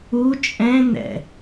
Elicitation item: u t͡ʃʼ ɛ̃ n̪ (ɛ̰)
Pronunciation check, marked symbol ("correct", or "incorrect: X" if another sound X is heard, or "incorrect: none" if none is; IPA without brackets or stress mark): correct